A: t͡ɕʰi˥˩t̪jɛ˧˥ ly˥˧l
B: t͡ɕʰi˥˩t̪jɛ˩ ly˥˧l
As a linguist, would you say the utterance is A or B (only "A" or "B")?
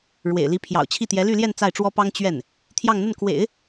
A